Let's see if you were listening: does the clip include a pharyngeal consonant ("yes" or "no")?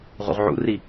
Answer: yes